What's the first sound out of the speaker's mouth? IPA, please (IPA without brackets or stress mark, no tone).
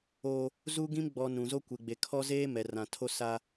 oː